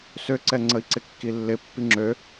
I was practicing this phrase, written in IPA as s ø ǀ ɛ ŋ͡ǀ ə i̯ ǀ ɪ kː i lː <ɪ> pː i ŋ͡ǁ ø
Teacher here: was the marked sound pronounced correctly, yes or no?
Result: yes